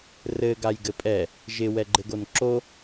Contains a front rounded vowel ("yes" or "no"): no